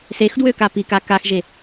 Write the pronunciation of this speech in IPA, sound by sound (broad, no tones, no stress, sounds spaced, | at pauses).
s e x d w ø k a p i k a k a x ʒ e